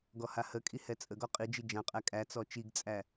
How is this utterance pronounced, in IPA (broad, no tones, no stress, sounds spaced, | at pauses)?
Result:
ɡ ɔ h a h ə kʼ i h ɛ t͡sʼ ə ɡ ɔ qʼ i d͡ʒ i d͡ʒ ã qʼ æ kʼ æ t͡s ɔ t͡ʃ i ɡ t͡sʼ æ